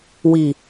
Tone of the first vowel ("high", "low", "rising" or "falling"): low